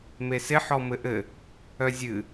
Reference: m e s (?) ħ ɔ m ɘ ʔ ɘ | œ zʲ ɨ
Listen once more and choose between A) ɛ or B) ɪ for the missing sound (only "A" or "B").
B